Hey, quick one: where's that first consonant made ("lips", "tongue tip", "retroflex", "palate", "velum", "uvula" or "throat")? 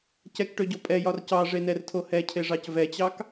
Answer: palate